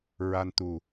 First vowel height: low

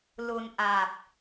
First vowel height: high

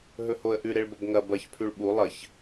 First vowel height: mid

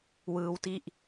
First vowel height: high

